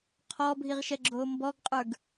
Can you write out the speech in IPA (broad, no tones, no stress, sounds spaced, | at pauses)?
qʰ ɔː bʱ i ʁ ʃ ɛ ɡ͡ǁ oː m b ɔ ɡ qʼ ə˞ ɡ